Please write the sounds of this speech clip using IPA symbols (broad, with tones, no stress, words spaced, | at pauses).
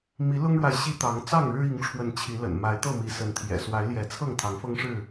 mi˨˦lʊ˦ŋɻwa˨ɪ̯ ɕi˦t̪ɑ˨˦ŋ t͡sɑ˥˨ŋɻɻ̩˦i˨˦ŋʈ͡ʂʰwə˨˦n t͡ɕʰi˨˦lə̰˨˩n ma˨˦ɪ̯t̪ɤ˥˨ mi˨˦sə˨˦nt̪ʰjɛ̰˨˩ swa˨˦ɪ̯ljɛ˨˦ t͡sʰɤ˥˨ŋt̪ʰɑ˨˦ŋ fɤ˦ŋʂɻ̩˥˨